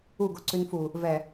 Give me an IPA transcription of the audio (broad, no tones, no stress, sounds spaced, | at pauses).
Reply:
u ɡ o ǀ ʉ n f u | v ɛ